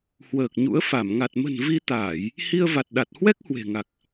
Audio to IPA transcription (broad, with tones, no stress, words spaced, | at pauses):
hwəː˨˩k̚ɲṵ˧˥ə̯ fa˧˩m ŋa˨˩t̚mə̤˨˩n vi˧ t̪aː˧˩˨j | hi˧ə̯va˨˩t̚ ɗa˨˩t̚hwɛ˦˥k̚hwe̤˨˩ŋa˨˩k̚